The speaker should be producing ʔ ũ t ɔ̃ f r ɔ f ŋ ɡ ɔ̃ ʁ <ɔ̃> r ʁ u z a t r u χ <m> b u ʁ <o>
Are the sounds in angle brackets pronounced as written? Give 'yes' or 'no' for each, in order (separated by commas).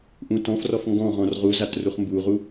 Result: yes, yes, no